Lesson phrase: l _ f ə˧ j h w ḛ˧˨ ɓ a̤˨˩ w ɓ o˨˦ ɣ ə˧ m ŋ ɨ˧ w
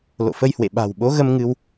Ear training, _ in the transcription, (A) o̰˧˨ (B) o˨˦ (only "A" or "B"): A